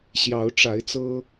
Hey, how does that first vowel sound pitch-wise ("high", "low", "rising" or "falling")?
rising